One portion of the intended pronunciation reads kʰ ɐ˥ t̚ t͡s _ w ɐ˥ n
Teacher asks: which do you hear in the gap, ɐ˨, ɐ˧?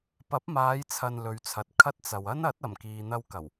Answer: ɐ˨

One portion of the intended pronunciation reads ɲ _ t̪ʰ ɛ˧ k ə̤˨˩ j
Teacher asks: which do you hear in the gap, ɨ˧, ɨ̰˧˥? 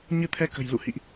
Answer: ɨ˧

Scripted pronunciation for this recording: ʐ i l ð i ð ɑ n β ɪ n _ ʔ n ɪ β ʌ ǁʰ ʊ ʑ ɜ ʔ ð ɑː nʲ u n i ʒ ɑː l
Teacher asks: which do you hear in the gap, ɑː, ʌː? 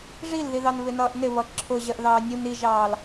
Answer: ʌː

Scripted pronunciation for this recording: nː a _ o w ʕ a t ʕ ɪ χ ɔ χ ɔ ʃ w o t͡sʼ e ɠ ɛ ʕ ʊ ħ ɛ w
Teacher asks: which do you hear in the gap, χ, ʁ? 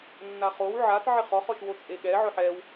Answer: χ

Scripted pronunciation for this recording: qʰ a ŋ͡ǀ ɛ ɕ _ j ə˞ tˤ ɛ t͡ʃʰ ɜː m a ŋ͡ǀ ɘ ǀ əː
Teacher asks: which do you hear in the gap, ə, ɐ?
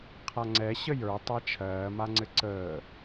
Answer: ə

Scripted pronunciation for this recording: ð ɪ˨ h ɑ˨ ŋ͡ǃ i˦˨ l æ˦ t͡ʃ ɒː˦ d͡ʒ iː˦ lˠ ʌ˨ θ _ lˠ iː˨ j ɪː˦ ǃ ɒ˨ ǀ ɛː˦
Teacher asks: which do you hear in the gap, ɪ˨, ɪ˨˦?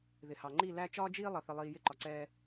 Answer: ɪ˨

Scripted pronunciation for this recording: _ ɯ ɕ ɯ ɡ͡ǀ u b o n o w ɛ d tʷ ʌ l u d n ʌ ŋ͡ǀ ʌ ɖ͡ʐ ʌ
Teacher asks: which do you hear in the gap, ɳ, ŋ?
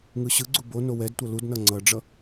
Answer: ŋ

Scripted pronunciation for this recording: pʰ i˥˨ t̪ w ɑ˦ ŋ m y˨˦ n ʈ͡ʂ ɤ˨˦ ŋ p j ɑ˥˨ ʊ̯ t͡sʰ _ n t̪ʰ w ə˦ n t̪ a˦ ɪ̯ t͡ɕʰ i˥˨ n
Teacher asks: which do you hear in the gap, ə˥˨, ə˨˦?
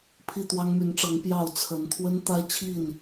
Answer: ə˨˦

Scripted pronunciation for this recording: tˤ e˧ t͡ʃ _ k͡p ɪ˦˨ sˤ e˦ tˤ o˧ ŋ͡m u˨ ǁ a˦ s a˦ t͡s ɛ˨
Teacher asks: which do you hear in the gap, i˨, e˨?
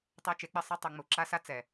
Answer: e˨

